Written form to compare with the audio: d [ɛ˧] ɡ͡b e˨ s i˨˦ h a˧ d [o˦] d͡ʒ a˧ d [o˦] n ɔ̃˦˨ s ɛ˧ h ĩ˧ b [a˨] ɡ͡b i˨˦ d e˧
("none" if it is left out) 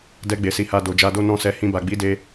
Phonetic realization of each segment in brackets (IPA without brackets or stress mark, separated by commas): ɛ˧, o˨, o˦, a˨